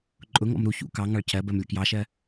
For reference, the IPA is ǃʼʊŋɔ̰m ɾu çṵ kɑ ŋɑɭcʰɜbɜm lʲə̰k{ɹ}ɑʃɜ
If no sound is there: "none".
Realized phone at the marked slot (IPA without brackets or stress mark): j